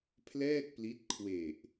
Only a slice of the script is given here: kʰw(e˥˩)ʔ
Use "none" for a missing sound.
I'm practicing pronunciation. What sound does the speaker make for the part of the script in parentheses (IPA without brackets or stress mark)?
e˨˩